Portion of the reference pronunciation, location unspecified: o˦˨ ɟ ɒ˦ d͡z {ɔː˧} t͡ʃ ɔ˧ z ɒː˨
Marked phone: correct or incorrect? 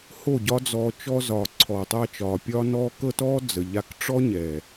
correct